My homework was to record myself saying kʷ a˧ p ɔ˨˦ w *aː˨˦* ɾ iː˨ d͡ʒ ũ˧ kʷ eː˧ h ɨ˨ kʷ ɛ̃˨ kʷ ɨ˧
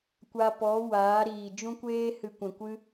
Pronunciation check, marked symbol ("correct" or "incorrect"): correct